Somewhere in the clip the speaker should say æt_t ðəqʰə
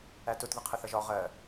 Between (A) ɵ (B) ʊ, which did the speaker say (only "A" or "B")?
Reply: B